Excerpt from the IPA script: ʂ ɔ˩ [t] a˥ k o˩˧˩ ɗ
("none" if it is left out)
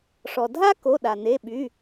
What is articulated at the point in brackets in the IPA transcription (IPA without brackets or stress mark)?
dʱ